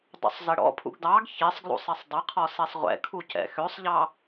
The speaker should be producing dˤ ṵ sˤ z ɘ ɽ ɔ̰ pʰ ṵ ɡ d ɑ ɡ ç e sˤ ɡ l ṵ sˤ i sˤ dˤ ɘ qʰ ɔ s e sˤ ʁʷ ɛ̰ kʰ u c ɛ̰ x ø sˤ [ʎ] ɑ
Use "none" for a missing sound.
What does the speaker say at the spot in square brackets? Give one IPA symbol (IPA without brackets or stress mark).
ʎ